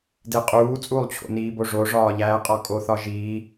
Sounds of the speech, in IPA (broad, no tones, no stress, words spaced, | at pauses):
deqʼuː t͡sʼulˠt͡ɕʰo̰niːbo ʐoʐɒːʎæːqʼɒ kʼoθɒʒiː